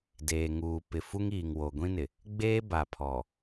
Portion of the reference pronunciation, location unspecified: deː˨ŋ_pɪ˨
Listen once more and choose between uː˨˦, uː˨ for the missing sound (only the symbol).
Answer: uː˨